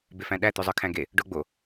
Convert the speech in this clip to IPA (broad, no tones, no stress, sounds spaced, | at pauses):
b e f æ̃ ɗ æ t̪ ʉ zˤ ə˞ kʰ æ̃ ɡ e | ɖ o ɡ͡b o